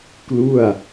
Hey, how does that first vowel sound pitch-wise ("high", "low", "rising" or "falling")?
falling